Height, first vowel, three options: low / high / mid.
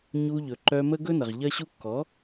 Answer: high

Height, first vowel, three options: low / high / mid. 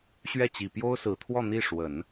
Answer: mid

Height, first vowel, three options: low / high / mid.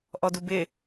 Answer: mid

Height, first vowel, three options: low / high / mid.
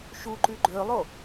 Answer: high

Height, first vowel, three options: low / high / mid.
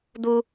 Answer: high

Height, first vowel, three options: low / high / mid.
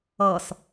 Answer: mid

